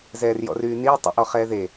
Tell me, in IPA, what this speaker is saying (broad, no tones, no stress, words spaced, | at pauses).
zɛːrjɔ̰ryːniː tˤə̰ ʔɔχɛːðe